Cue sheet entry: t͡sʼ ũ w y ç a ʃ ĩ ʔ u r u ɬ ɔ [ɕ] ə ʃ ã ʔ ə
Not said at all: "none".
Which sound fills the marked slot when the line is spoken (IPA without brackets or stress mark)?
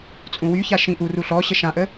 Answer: ɕ